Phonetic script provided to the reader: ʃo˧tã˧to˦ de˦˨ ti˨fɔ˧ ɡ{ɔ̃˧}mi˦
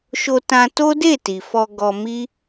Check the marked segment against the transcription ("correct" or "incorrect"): incorrect